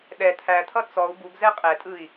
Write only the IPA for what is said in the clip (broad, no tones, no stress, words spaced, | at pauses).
ɗɛ t̪ʰæt̪ʰʌ t͡sɔu̯ buɡzɛ qʼɛtʼɯi̯